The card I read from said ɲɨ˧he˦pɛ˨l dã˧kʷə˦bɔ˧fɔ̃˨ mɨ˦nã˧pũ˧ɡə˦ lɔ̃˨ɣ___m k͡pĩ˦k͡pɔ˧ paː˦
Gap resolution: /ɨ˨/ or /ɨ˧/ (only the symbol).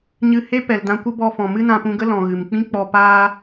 ɨ˨